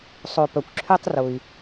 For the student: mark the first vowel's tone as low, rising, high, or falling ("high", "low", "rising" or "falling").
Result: low